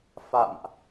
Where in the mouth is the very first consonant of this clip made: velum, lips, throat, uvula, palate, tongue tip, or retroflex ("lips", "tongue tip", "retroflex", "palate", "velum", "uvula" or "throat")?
lips